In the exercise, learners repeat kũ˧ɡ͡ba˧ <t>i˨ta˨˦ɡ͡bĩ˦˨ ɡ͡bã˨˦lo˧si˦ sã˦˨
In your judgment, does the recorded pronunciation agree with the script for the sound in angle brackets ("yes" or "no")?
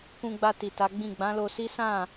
yes